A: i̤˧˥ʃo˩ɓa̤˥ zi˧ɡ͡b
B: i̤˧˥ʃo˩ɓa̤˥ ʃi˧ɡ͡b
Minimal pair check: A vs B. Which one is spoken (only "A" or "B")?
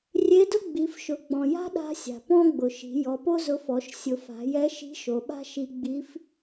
B